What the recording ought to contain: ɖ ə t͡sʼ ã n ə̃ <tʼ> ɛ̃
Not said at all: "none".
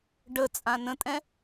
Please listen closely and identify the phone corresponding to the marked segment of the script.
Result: tʼ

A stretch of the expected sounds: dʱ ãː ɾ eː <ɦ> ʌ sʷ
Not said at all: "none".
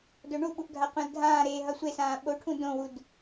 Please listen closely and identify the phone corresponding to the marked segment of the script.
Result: ɦ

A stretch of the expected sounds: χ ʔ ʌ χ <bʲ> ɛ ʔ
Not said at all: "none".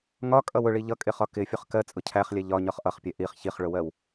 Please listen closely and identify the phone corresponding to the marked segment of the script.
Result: pʲ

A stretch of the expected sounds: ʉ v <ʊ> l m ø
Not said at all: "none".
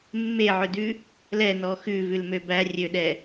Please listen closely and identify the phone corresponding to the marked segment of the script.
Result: ʉ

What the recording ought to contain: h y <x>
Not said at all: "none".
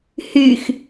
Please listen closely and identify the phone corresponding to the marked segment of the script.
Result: x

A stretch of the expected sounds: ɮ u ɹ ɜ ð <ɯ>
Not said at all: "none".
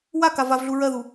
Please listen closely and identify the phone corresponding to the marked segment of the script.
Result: u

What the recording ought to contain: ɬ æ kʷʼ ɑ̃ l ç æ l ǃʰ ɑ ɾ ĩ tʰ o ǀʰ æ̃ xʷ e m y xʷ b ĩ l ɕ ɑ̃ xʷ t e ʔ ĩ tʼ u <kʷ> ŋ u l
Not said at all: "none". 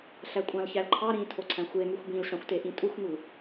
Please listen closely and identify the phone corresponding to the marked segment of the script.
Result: xʷ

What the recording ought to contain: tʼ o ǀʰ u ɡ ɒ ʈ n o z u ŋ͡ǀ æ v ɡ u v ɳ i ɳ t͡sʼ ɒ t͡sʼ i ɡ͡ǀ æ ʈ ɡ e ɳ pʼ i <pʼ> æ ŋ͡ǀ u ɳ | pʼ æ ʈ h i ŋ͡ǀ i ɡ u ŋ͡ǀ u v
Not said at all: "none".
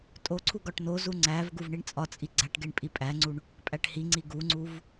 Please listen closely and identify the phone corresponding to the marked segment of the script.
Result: pʼ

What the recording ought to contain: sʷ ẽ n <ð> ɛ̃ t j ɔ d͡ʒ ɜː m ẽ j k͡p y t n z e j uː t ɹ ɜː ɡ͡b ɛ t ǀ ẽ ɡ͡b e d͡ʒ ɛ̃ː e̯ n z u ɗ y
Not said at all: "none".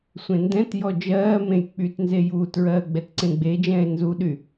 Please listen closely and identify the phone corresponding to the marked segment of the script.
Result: d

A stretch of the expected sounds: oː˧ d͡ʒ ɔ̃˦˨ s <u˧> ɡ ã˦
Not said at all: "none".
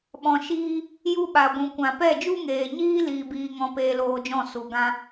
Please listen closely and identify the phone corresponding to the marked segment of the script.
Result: u˨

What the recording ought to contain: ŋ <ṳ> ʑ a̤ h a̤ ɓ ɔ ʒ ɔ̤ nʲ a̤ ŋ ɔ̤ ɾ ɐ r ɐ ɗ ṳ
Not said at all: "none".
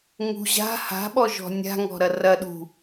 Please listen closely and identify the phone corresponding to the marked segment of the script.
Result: ṳ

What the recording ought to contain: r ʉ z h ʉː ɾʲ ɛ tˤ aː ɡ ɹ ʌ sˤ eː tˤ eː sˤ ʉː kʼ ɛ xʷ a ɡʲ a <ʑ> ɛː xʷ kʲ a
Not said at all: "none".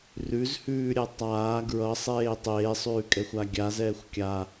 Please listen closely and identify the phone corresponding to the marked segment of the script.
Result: z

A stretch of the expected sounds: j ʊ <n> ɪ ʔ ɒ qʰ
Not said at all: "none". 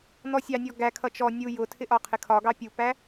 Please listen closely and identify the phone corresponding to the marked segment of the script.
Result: tʰ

